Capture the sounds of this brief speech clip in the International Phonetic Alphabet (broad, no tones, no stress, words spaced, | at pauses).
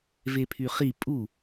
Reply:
vepʰyχi pʼu